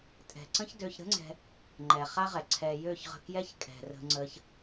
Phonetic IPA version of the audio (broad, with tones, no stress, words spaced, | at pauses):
tʼɛ̤˨ǀə̃˦ç dø˧çɾə̤˦ŋ͡ǀɛ̤˧ | ŋ͡ǃɛ˨χa˦ʁɛ˨ ǀʰɛ˧ jø˦˨çʁə̤˧kjɛ˦ç kʼɛ̤˨rə̤˧ ŋ͡ǀə˧ç